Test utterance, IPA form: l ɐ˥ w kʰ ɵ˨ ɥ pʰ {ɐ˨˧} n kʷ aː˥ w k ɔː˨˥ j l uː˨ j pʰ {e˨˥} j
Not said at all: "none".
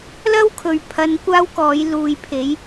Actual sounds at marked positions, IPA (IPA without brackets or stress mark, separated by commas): ɐ˨˧, e˨˥